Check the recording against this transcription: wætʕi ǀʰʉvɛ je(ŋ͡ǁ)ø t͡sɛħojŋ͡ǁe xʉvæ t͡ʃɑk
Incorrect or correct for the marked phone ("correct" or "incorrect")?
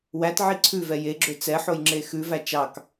incorrect